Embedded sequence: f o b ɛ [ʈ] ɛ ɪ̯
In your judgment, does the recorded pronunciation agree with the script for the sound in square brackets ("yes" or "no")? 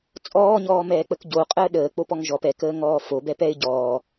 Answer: no